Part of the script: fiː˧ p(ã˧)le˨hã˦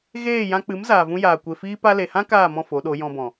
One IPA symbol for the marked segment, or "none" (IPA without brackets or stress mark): a˧